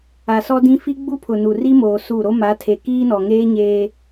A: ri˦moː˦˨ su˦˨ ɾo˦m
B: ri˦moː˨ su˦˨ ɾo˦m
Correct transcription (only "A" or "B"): B